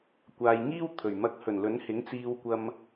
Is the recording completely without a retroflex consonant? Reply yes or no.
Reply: yes